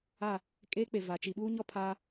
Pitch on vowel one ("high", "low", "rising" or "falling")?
falling